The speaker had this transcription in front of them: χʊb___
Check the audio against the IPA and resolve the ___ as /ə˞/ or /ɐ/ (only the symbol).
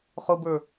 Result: ə˞